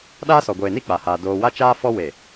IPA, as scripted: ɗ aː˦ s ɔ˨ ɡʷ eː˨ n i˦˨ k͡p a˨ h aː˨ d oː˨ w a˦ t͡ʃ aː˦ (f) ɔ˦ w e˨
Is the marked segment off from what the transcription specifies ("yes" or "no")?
no